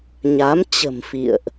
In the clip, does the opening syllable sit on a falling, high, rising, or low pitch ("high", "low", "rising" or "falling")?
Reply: rising